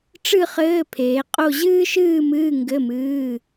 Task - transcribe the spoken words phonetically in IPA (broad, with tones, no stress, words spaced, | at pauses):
ʈ͡ʂɨ˥˧χɘː˧˥˧ pʰeː˨˦qʼo˥˧ ʑɨː˥ʃɨː˥˧mɨː˧˥˧ ŋɡɘ˧˥˧mɨː˧˥˧